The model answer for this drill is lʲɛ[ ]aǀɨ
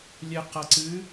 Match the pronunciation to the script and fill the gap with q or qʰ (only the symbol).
q